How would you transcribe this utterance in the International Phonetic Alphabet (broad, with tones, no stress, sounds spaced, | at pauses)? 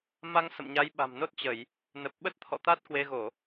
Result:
m a˧ ŋ s ə̰˧˨ m ɲ a˨˦ j ɓ a̤˨˩ m n o˦˥ t̚ t͡ɕ ə˧˩˨ j | n ə˨˩ p̚ ɓ ə˦˥ t̚ t̪ʰ ɔ̰˧˨ t̪ a˦˥ t̚ k w e˧ ɣ o˧˩˨